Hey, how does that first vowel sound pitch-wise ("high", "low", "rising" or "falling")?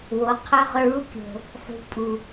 rising